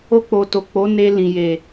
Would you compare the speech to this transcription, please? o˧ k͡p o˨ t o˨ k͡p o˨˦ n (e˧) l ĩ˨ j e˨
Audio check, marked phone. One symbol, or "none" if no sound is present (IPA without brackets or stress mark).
e˧